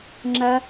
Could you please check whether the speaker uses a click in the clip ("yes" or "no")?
yes